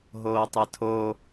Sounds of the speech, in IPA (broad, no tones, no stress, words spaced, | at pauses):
ɦoːtˤɨtʰo